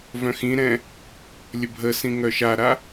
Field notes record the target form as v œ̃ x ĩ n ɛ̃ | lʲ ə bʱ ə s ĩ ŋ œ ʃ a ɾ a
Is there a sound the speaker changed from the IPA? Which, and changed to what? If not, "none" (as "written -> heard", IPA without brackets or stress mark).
n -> ɾ